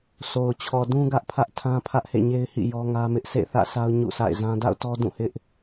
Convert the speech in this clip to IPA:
sʰ o˨ ʊ̯ t͡ɕʰ ɔ˨ d ũ˦ ɡ ä˦ ʔ pʰ ä˦ ʔ tʰ ã˦ pʰ ä˦ ʔ h ḛ˦˨ ɲ e˦ ɪ̯ h ḭ˦˨ j ɔ˦ ŋ ä˦ m ɪ˦ ʔ sʰ ḛ˦˨ θ ä̰˦˨ s a˦ ʊ̯ ɲ ṵ˦˨ s a̰˦˨ ɪ̯ z ã˦ d a̰˦˨ ʊ̯ t ɔ˦ d ũ˦˨ h ɪ˦ ʔ

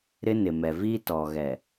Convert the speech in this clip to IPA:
ɾ ɪ˦ n ɪ˨ m ɛ˨ v i˦ t ɔ˨ ɣ ɛ˨

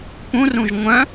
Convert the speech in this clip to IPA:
p ũ r ũ ʒ ŋʷ œ̃

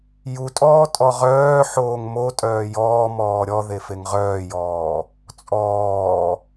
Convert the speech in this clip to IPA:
j u tʼ ɔː tʼ ɔ ʁ œː ħ oː ŋ m o tʼ œː j ɔː m ɔː ɾʲ ɔ ð e f e ŋ ʁ œː j ɔː | t͡sʼ ɔː

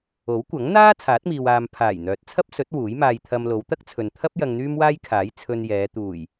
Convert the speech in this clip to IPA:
o˨˥ w kʷ ɐ˨˥ ŋ n̪ aː˥ t͡sʰ aː˨˥ t̚ m iː˨ w aː˨ m pʰ aː˨˩ j n̪ œː˨ t̚ t͡sʰ ɐ˥ p̚ s ɵ˨˥ t̚ w uː˨˥ j m aː˧ j t̪ʰ ɐ˧ m l o˨˧ w t̪ ɐ˥ k̚ t͡sʰ ɵ˨ n t̪ʰ ɐ˥ p̚ j ɐ˧ ŋ n̪ yː˥ m w aː˥ j kʰ aː˨˥ j t͡sʰ ɵ˧ n j ɛː˨˧ t̪ uː˨˩ j

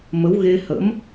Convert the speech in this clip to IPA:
m ə˨˦ w ɣ e˧ h ə̰˧˥ m

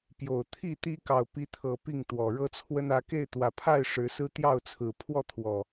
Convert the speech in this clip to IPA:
p j o˨˩ ʊ̯ t̪ʰ i˥˨ t̪ i˦ k ɑ˨ ʊ̯ p i˨˦ t̪ʰ ɤ˨˩ p i˥˨ ŋ t̪ w ɔ˨˩ ɻ ɤ˦ t͡sʰ w ə˦ n ä˨˦ k e˥˨ ɪ̯ t̪ w ä˨˩ pʰ a˥˨ ɪ̯ ʂ ɻ̩˨˦ s ɹ̩˦ t̪ j ɑ˥˨ ʊ̯ t͡sʰ ɹ̩˨˩ pʰ w ɔ˥˨ t̪ʰ w ɔ˨˩

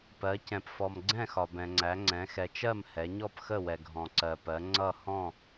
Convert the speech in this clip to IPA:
p ɜ˩˧ c ɛ̃˩ p f ɔ˩ m ɡ͡ǀ ɛ̃˥˨ x ɒ˩ b ɛ̃˩ ŋ͡ǀ æ˩˧ ŋ͡ǀ ɛ̃˩˧ x ɛ˩ t͡ʃ ɜ˥˨ m h ɛ˩˧ ɲ ɔ˥˨ p x ə˥˨ w ɛ˩ ɡʱ ɔ̃˩ ǀ ɜ˩ p ɜ˩˧ ŋ͡ǀ ʌ˥˨ h ɔ̃˥˨

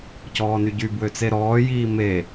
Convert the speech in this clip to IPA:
c ɔː n y ɟ y b w ø t͡s e ɾ ɔː j iː m e

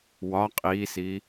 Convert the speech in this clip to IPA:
w ɒ qʼ iː s i

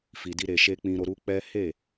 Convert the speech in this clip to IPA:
f i˨ d i˧ ɾ e˨ ʃ e˧ k͡p ĩ˧ ɾ o˧ ɾ u˦ k͡p ɛ˦ h e˦˨

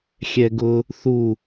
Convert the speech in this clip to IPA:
xʲ ɛ ɡ ʊ | θ u

